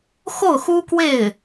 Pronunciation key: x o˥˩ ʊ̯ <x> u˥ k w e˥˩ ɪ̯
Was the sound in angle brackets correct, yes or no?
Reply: yes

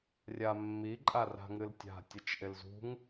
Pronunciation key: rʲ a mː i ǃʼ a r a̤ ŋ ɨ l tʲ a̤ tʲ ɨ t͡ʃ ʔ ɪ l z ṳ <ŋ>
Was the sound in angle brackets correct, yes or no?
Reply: yes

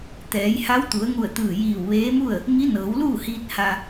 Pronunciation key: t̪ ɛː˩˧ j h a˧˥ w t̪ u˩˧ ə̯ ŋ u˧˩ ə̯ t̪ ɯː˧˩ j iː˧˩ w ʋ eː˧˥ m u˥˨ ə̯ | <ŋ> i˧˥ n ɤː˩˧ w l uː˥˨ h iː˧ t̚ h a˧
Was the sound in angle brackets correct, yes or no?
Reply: yes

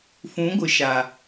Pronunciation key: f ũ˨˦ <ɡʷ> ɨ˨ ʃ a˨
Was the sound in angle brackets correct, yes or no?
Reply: yes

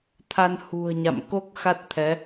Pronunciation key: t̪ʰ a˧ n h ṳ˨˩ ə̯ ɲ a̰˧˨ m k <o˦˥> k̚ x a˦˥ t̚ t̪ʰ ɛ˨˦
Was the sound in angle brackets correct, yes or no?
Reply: yes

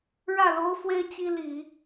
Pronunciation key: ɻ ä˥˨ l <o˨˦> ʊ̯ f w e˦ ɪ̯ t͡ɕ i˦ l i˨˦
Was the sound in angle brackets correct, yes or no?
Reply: no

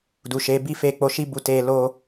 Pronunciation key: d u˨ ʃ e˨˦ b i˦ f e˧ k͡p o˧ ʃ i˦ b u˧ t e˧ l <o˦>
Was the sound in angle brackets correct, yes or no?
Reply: no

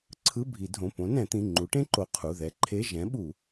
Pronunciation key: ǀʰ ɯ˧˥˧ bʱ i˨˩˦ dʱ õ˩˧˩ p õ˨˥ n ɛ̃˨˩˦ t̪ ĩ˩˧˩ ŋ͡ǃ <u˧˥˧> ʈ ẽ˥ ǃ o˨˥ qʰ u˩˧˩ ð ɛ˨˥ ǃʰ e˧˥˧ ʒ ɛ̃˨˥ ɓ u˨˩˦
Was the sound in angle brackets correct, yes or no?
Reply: no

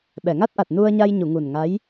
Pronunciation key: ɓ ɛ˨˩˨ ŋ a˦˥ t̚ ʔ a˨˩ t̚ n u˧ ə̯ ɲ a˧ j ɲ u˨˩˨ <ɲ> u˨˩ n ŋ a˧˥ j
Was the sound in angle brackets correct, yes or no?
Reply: no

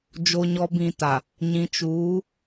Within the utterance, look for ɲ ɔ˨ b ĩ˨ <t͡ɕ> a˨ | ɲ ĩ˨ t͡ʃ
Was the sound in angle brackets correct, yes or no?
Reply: no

